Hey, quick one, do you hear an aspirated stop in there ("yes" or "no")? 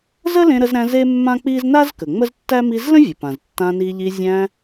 no